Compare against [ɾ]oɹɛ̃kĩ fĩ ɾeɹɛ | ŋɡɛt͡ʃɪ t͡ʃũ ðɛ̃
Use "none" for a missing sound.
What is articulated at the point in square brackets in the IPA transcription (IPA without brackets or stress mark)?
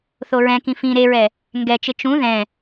θ